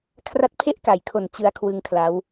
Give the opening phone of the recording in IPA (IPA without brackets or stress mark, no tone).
kʰ